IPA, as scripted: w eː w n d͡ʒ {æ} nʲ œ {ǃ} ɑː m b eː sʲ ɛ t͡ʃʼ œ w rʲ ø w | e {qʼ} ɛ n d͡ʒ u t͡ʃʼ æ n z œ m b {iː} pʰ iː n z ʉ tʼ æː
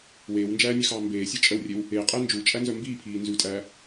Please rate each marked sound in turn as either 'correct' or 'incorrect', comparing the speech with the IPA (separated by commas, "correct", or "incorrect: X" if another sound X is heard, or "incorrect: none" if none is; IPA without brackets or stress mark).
incorrect: æː, incorrect: x, correct, correct